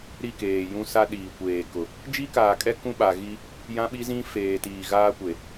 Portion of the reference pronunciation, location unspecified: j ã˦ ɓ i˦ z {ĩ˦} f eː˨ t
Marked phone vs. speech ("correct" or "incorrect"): correct